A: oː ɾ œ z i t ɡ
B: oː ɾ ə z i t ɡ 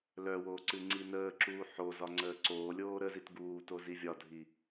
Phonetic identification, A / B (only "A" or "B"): B